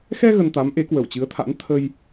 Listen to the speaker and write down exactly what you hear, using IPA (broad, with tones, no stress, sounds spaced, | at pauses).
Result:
x ɛ˧ ɣ ə˧ n t̪ a˨˦ m ʔ e˨˦ k w ə˧˩ w t͡ɕ ɨ˨˦ ə̯ t̪ʰ a̰˧˥ n t̪ʰ ə˧ j